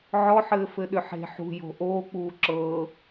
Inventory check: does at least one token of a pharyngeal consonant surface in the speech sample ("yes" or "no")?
yes